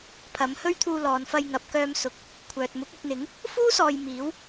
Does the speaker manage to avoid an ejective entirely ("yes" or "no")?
yes